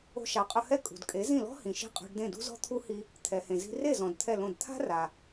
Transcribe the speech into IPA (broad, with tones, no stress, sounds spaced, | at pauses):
o̤˧ ʃ a˩˥ qʼ ʊ˧ h ɛ˥˩ kʼ ṳ˩ d kʼ e˩˥ z ĩ˥˩ l ɔ̤˥ h ĩ˩ ʃ i̤˥˩ qʼ ɔ̤˧ ɖ d ẽ˥˩ d ṳ˥ z ɔ̤˥ t̪ʰ u˥ h i˧ | t̪ʰ ɛ˩ h ẽ˩ z i̤˧ r e˥˩ z ɔ̃˩ d t̪ʰ ɛ˥˩ l õ˥˩ d t̪ʰ a̤˥ r a˩